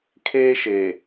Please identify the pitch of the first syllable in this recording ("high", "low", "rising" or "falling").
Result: high